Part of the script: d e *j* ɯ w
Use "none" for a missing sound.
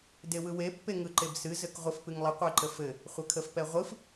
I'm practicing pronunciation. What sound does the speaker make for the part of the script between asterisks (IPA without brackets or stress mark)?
w